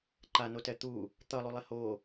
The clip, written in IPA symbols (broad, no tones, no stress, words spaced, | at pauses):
ǃano tɛt̪u | t̪ʌlˠulˠe ho